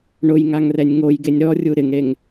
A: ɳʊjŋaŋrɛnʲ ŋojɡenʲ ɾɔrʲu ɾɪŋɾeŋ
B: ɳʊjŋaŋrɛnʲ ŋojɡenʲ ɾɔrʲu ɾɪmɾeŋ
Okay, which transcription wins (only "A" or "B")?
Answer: A